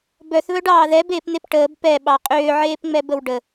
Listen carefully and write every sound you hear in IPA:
b œ θ β œ ɖ ɑː ð ɛ b eː p n̪ e p ʈ əː b p ɛ ɓ ɑ qʼ ʏː ʕ eː p ŋ͡m ɛ b ə w ɖ ə

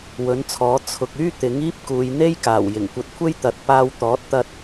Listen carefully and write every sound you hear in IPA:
w ɵ˨˥ n t͡sʰ ɔː˨˥ t͡sʰ ʊ˨ k̚ yː˥ t̪ ɪ˨˥ ŋ iː˥ p̚ k uː˨˧ j n̪ e˥ j k aː˨˩ w j ɪ˨˩ ŋ kʷ ɐ˧ t̚ kʷʰ e˥ j t̪ ɐ˨ t̚ p aː˧ w t̪ ɔː˨˥ t̚ t̪ ɐ˧ t̚

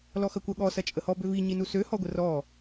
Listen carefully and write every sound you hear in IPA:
l ɔ x ɐ kʷ ɐ ɠ ɔ s ɐ t͡ʃʼ ə h ɔ b ø v i ɲ i n u s ø h ɔ ɡʷ ə r ɔ

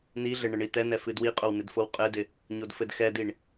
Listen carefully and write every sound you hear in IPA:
n̪ i ɮ ɘ ɳ ɘ ɳ i t̪ ɛ n ɛ f ɨ d w i qʼ o w n ɪ d f o w qʼ ɘ d ɪ | ɲ o d f ɘ d x ɛ d i ɳ

